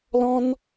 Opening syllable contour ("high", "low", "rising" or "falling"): high